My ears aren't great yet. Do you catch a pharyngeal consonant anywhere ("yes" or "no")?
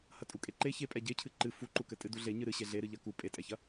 no